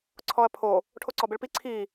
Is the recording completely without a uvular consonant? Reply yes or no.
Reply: yes